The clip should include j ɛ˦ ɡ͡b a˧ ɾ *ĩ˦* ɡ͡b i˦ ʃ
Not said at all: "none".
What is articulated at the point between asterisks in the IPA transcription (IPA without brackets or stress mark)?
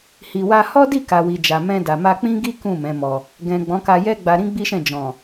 ĩ˦